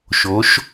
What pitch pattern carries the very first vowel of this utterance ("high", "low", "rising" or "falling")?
rising